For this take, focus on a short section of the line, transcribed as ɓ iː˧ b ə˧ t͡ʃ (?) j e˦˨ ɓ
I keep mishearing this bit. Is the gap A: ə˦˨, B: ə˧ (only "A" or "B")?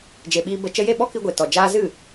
B